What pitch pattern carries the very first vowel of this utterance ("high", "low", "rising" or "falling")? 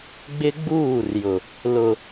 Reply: high